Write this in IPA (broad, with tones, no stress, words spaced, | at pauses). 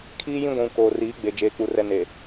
kʰiː˦jĩ˦ ɡʷũ˨ koː˨riː˨˦ɡ͡be˨ d͡ʒeː˨k͡pu˨ rɛ˨ne˨